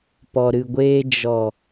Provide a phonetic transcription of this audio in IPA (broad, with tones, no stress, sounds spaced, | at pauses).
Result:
p ɔ˨ ɾ ɨ˨ ɡʷ eː˧ d͡ʒ ɔ˨